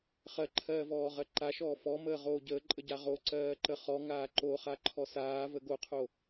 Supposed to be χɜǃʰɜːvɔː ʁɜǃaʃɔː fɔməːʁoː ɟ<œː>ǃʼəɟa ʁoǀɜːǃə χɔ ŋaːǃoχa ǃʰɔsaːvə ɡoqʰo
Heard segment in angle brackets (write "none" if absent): əː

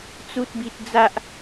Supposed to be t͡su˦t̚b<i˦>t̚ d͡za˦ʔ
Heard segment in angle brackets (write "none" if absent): i˦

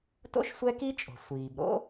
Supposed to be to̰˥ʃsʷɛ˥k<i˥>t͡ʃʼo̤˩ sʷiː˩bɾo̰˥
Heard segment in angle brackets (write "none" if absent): i˥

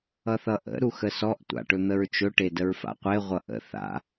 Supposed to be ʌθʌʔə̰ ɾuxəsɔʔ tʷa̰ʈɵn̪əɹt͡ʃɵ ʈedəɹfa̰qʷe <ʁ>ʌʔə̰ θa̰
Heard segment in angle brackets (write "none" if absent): ʁʷ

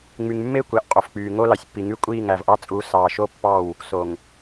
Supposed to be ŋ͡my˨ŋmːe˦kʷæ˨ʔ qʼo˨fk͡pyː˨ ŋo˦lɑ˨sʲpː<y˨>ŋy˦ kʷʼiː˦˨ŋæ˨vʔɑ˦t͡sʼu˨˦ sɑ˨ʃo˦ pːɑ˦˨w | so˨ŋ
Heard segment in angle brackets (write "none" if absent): i˨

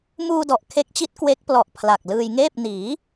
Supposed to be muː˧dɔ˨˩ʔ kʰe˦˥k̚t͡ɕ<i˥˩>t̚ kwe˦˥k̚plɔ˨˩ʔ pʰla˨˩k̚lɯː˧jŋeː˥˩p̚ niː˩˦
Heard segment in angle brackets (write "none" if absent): i˦˥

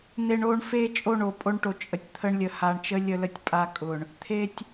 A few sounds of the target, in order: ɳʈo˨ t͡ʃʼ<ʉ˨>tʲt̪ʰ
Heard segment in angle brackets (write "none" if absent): ə˨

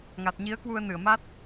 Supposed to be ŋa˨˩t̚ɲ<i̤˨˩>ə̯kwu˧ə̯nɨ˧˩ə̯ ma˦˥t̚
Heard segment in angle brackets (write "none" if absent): i˨˦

